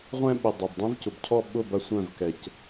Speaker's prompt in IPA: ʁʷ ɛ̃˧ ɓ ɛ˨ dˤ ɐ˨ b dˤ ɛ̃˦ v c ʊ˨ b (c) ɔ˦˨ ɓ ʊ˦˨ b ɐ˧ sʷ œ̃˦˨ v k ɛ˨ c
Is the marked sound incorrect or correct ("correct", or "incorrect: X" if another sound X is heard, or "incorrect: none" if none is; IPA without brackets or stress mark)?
incorrect: cʰ